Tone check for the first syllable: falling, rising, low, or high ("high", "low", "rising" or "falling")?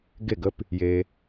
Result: falling